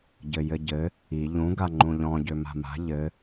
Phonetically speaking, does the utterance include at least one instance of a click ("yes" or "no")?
yes